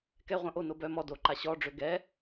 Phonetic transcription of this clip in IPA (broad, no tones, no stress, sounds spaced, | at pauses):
k ɛ ʁʷ œ̃ ʔ o n o b œ m ɔ d o ǃ a ɕ ɔ ɖ͡ʐ ø ɡ ɛ